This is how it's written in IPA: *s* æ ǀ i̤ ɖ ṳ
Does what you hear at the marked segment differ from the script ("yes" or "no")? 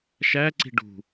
yes